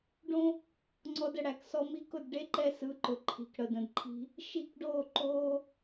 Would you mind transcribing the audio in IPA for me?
ɖ õ˧ | ŋ͡ǀ ɔ˧ d ə˨ ɽ æ˨ k s ɔ˧ m i˧ k ʊ˦˨ d ɖ e˦ ǃ ɛ˧ s ɯ˨˦ ǃ ʊ˨ ǃʰ i̤˨ k ɽ ə˨ d ə̃˨ d ǃʰ i̤˧ | ʃ i˦˨ k ɖ oː˦˨ ǃ oː˧

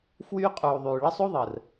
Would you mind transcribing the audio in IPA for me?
f w yː˦ qʼ uː˨ ðˤ yː˨ ɭ ə˦ sˤ u˦ ðˤ əː˨ r

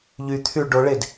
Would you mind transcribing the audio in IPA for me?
ʎ y t̪ʰ y ɭ ɖ o ɭ e d

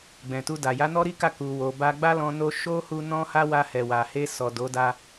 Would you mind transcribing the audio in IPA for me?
ɡ͡b ɛ̃˨ t u˧ d a˨ j a˨˦ n ɔ˦ ɾ i˦ k a˦˨ k u˨ w o˨ b a˧ ɡ͡b a˦ l ɔ̃˧ n o˧ ʃ o˦ h u˧ n ɔ̃˦ h a˦ w a˧ h ɛ˨ w a˨ h e˧ s ɔ˨ d o˨˦ d a˧

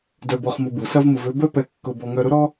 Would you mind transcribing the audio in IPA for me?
d œ˧ b ɔ˧ χ m ʊ˧ b u˩ s ɐ˥ v m ʊ˧ v ø˥ b œ˥ p ɛ˧ kː ʊ˧ b ɔ˧ ŋ œ˧ ɾ ʊ˥ ɾ ɔ˥

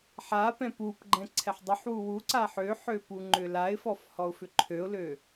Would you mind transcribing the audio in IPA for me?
ħ a p ɛ̃ p u p ɡ͡ǃ ɛ̃ ǀʰ ɛ ħ dˤ ʏ ħ w u w u ǀ a ħ ø ħ ø p u ŋ͡ǃ ʏ l a ɪ̯ f ɔ f h ɔ ʊ̯ f ʏ ǃʰ ø ʊ̯ l ø

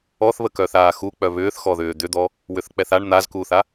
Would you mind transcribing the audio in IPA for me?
ɔ θ β ə k œ θ aː x u k͡p œ β ʏː θ x ɔ ð ʏː d̪ ʏ d̪ ɔ | w ʏ θ k͡p ɛ θ a ɳ n̪ a z k uː θ a

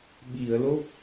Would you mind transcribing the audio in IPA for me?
ɓ i˨˩˨ ə̯ l o˦˥ k̚

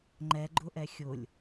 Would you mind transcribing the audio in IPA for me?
ŋ͡ǃ ɛ ɡ͡ǃ ʊ ʔ ɛ xʲ ʊ lʲ

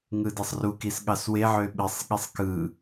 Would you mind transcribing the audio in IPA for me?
ŋ ɯ d e sˤ r u k i s ɠ ɑ s w e ʕ ø ɓ i sˤ ɠ i sˤ k ɯ

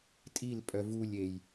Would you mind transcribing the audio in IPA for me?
tʼ i l pʼ œ v u lʲ e j

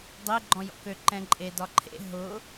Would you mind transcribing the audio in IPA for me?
dˤ e ɡ͡ǃ ɔ̃ j ɔ̰ k ø ǃ ɛ̃ ǃʼ e d ɒ ǃʰ ḛ ɦ ʊ

